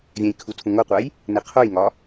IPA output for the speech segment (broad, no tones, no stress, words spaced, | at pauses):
vʲɛ̃jkʰu tʰũŋoqʷaj | neqʰojŋɒ